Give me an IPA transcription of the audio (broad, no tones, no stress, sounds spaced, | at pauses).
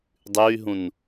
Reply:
dˤ ʉ y̯ ɦ ũ n